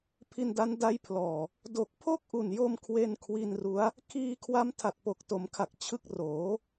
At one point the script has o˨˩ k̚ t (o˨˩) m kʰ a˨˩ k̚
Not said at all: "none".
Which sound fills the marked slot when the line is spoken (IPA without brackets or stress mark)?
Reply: o˩˦